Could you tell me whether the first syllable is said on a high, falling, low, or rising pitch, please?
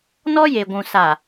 high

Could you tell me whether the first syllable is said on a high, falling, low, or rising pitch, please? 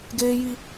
high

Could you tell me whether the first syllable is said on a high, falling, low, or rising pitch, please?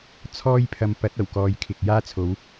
high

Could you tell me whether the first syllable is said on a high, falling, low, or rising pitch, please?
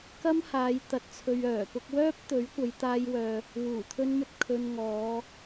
high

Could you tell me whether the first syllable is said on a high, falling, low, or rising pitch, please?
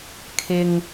low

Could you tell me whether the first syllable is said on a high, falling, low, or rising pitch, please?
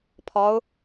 rising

